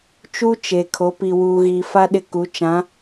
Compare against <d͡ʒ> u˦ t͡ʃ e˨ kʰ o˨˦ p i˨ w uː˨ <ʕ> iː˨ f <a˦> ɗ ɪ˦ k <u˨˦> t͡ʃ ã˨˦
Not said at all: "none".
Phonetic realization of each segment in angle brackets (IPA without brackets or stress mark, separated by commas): t͡ʃ, ɣ, a˦, u˨˦